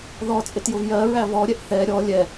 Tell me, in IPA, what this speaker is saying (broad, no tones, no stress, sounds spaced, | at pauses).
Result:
ð ɔ t͡sʼ ɪ t j ʊ v j ɜ ɹ æ v ɔ ɾʲ ɛ ʔ θ ɛ ɾʲ ɔ lʲ ɛ